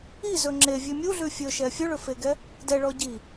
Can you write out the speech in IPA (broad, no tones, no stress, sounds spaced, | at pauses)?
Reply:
i z ɵ ŋ͡ǁ e vʲ ʉ mʲ u ɮ ʉ fʲ ɵ ʃ ɛ fʲ ɵ ɭ ɵ f e ɡ ɛ | d ɛ ɭ ɔ ɟ i